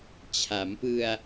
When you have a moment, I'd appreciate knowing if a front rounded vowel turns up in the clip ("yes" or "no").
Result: no